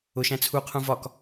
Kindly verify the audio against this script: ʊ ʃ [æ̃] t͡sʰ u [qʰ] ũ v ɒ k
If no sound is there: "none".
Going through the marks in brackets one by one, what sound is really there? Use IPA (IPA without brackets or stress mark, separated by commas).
æ̃, qʰ